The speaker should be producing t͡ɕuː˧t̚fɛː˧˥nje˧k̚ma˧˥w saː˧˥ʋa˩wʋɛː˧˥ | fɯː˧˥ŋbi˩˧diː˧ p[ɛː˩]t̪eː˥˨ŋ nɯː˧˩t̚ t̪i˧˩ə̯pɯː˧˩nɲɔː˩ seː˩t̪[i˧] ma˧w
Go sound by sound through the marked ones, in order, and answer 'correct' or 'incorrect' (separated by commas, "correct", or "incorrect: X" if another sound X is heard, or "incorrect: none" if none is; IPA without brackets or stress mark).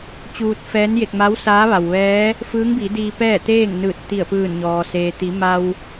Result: incorrect: ɛː˥˨, incorrect: i˩˧